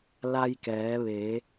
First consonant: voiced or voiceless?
voiced